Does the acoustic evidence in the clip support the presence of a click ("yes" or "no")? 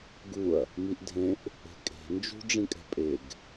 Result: no